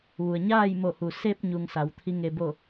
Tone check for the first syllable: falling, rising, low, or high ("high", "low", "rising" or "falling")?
low